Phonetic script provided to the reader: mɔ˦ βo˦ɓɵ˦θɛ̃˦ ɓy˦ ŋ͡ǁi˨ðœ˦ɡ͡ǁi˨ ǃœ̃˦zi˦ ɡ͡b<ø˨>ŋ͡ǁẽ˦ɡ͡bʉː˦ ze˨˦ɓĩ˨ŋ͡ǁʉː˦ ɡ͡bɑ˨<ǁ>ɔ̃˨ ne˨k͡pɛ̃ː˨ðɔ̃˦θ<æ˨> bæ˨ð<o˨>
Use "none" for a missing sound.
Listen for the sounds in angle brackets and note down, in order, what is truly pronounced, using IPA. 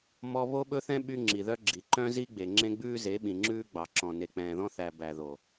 e˨, ǁ, æ˨, o˨

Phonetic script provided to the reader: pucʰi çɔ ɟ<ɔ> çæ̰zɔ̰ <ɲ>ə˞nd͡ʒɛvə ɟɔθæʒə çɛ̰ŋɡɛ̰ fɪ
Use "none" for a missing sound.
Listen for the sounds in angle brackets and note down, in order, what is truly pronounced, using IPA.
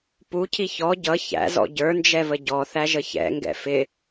ʌ, ɟ

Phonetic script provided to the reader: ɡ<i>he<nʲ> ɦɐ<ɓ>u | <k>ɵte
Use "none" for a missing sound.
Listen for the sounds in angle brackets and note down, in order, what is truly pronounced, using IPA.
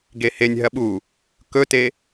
e, nʲ, ɓ, k

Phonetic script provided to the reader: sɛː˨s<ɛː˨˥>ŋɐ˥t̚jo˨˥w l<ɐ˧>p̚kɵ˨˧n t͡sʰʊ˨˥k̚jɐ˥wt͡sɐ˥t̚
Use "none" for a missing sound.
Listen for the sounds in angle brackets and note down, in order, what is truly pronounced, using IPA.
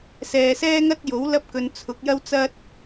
ɛː˥, ɐ˥

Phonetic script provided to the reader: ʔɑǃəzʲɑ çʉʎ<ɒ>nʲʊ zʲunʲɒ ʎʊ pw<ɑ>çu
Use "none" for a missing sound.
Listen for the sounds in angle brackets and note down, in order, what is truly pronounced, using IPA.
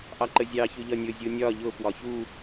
ɒ, ɒ

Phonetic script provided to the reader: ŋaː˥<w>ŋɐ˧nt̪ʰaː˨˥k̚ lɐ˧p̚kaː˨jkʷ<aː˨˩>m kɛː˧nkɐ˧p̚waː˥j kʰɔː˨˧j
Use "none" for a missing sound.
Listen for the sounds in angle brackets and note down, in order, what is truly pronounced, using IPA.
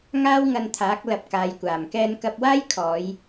w, aː˨˩

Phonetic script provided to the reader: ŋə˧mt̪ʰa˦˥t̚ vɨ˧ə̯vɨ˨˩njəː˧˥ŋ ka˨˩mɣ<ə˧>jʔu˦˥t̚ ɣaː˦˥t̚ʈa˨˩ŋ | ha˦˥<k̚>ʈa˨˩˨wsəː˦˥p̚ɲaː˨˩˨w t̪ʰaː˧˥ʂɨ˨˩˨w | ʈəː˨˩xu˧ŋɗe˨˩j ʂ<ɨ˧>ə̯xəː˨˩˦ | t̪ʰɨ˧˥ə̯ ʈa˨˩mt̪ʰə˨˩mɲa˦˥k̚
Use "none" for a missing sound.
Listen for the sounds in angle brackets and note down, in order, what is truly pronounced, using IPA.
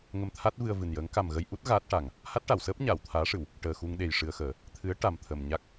ə˧, t̚, ɨ˧

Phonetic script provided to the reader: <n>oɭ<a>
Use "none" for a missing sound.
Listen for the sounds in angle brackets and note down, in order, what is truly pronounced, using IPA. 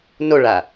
n, a

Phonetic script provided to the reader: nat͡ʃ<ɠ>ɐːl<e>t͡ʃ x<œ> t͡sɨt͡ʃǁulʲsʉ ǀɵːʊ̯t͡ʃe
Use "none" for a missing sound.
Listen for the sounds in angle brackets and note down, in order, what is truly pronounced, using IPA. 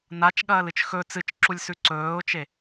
ɠ, ɨ, ɵ

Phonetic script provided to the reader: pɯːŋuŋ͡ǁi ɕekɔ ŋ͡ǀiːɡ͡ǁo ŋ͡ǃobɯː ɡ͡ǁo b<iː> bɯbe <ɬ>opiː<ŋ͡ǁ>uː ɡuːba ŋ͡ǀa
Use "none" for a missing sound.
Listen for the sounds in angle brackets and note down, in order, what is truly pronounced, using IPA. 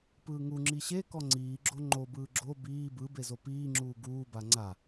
iː, z, ŋ͡ǁ

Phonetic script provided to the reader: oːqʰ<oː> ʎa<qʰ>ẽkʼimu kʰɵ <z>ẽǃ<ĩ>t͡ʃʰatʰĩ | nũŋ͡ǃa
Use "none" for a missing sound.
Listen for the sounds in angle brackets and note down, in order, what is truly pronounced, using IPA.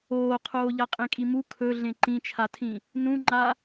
oː, qʼ, ɮ, ĩ

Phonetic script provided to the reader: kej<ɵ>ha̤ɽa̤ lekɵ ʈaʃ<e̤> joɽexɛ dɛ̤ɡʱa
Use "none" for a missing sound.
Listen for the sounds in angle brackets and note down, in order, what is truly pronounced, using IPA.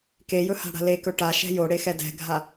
ɵ, ɛ̤

